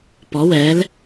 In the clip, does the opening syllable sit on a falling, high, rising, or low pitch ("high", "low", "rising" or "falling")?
rising